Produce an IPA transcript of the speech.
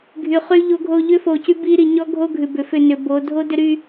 ɡʱ y˨ χ y˦ ʎ o˦ ɡʱ o˦ ʎ ʏ˦ f o˨ c y˦ b i˦ ɾ i˨ ɲ ɔ˦ ɡʱ o˦ ɡʱ ʉ˨ b ʏ˨ f ʏ˦˨ n ʏ˨ b o˨˦ dʱ o˦ d ʏ˦ ɾ y˦

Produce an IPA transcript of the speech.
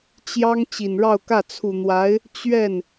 t͡ɕ j ɑ˥ ŋ t͡ɕ i˨˩ n ɻ ɑ˥˧ ʊ̯ k ä˥˩ t͡sʰ u˨˩ n̪ w a˧˥ ɪ̯ | t͡ɕ ɥ ɛ˥˩ n

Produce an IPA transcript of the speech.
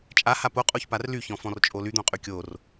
t͡ʃʼ a h a p o qʼ o ç p a r l y ç ɔ̃ f ɔ̃ r t͡ʃʼ o l y d̪ õ qʼ y kʲ o r

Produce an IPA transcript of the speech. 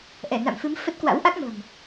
ʔ ɛ˧˩ n a̰˧˨ m f ɨ˨˦ m f ə˦˥ t̚ k w a̰˧˥ w ʔ a˦˥ k̚ m ə̤ː˨˩ m

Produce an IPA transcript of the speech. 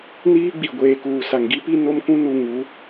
n iː˦ ɡ͡b i˨ ɡʷ eː˨ k uː˨ s a˨ ŋ ɡ i˦ p i˦ n o˦ m k ũ˦ n u˨ ŋ u˨˦

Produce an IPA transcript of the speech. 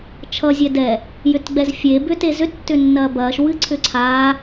t͡ʃʰ ʌ zʲ ɛ d ɛ | j ʏ t ɡ͡b ɛ z fʲ e b ʏ t e z ʏ tː ʏ nː ɐː b ɐː ʃ w ɨ ǀʰ ʏ ǀʰ aː

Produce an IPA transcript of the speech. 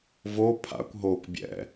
v o pʰ a̰ kʷ ɦ oː kʷ bʲ ɛ̰

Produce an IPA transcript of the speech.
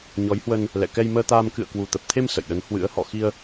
ɲ ɔ˨˦ j h w ə˧ n | l ɛ̰˧˨ k ɛ˧ j m əː˧ t̪ aː˧ m k ɨ̰˧˨ ə̯ k w u˨˩ t̪ ə˨˩ p̚ t̪ʰ e˧ m s ə̰˧˨ j ɗ ə˨˦ n h w ɨ̰˧˥ ə̯ h ɔ̰˧˨ x i˧ ə̯

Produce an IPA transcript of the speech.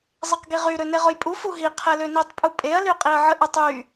zˤ e q ɡ i ʁ y ɾ ø n e ʁ ʊ j pʼ u f u ɦ i qʰ ɛ l ø n i tˤ pʼ u pʼ e ɐ̯ l y qʼ i ɐ̯ ʕ ə ʔ ə tˤ y

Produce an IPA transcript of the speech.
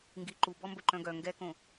ŋ ɡ i ǃ u b ɔ m b ɵ ǃ œ̃ ɡ œ ŋ ɡ ɛ k õ

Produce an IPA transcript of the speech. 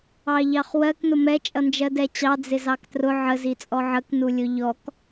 ɑ ʎ ɑ χ w ɜ k n ʊ m ɛ t͡ʃʼ ʌ n d͡ʒ ɜ d ɛ t͡ɕ ɑ d͡z ɪ z ɑ k t r ʊ ʕ ə z i t͡sʼ ɔ ʕ ə k n u lʲ ʊ ʎ ɔ k

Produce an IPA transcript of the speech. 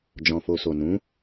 d͡ʒ ɔ̃˨ f o˨ s o˨ n ũ˨˦

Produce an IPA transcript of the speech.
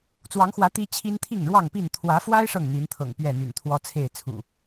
t͡s w ɑ˨˦ ŋ x w ä˨˦ t̪ i˦ t͡ɕʰ i˦ n t̪ʰ i˥˨ ŋ ɻ w ɑ˥˨ ŋ p i˥˨ n t̪ʰ w ä˨˦ f w a˦ ɪ̯ ʂ ɤ˥˨ ŋ n̪ i˨˦ n t̪ʰ ɤ̰˨˩ ŋ p ɥ ɛ˥˨ n̪ y̰˨˩ n t̪ʰ w ɔ˦ t͡sʰ e˥˨ ɪ̯ t͡sʰ ṵ˨˩

